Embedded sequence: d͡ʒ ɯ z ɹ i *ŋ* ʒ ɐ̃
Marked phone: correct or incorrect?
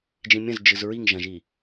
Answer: correct